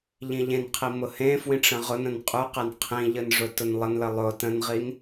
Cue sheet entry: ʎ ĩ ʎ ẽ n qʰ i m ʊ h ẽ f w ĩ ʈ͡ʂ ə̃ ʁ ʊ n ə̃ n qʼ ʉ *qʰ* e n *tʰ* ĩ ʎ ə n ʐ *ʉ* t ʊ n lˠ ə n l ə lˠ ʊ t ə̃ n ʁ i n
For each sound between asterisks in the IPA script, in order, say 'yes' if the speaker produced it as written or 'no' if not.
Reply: no, no, no

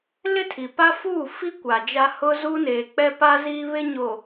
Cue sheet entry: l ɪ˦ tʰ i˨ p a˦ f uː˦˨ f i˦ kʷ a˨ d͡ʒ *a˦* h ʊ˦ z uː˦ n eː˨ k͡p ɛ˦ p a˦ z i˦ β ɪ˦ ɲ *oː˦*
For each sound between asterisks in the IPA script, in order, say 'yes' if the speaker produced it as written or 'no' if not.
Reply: yes, no

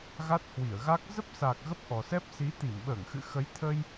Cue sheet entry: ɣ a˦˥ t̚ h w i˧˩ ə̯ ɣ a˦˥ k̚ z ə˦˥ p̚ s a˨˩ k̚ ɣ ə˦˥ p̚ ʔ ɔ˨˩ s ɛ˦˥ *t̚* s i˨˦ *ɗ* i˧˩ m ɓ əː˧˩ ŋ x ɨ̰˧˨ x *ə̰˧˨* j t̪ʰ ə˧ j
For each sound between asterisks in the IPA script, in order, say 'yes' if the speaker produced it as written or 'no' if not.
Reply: no, no, no

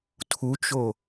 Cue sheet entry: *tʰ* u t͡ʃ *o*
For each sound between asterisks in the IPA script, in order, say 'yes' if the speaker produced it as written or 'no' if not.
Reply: yes, yes

